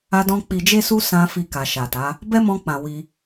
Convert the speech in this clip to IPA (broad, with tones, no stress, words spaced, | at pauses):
a˧dɔ̃˧ k͡pi˨d͡ʒe˧su˧ sã˧ fi˧ka˨ʃa˨ta˨˦ | bɛ˦mɔ̃˧k͡pã˨ wi˧